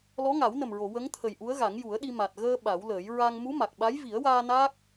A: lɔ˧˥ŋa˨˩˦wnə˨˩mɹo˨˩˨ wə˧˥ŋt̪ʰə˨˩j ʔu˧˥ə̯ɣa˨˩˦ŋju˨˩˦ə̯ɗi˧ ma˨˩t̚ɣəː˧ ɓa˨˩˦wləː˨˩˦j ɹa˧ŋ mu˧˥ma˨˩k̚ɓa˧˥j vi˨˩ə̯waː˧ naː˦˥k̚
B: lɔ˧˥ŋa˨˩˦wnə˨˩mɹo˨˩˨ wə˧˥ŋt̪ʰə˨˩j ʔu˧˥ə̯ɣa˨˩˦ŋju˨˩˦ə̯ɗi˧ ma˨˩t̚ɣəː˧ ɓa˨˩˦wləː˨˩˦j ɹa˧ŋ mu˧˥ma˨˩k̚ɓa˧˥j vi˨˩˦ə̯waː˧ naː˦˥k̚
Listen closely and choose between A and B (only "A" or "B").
B